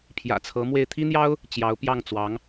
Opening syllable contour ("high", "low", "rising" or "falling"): low